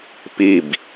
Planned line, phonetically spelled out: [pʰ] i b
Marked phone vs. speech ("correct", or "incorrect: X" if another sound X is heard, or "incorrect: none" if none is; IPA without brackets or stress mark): incorrect: p